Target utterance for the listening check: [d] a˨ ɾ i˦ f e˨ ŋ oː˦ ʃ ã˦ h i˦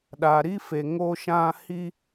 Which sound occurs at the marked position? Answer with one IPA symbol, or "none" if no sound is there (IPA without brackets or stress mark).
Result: ɗ